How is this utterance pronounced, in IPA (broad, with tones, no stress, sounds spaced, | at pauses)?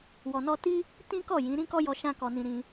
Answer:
w ɔ˧ n ɔ˦ t i˦ | t ĩ˦ k ɔ˦˨ j ĩ˨˦ ɾ ĩ˦ k ɔ˦ j ɔ˧ ʃ ã˦ k ɔ˧ n ĩ˧ ɾ ĩ˧